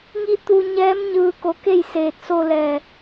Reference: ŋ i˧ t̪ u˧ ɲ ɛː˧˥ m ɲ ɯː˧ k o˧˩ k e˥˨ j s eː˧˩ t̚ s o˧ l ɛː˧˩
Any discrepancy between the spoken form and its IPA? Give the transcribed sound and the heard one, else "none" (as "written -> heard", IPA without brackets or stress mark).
none